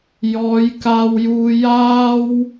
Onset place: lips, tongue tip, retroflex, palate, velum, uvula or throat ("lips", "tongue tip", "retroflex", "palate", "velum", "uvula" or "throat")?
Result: palate